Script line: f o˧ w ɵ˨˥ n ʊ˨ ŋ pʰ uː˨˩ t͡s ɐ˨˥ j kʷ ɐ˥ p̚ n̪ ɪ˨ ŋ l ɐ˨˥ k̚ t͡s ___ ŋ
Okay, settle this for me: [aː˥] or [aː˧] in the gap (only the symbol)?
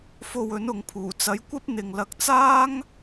aː˥